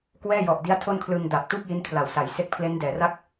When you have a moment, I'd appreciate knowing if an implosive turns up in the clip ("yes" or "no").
no